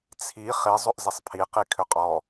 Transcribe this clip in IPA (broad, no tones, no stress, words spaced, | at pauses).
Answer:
t͡sʰi χi zˤɵʔzisˤpʰi qikʰʏqʼɔ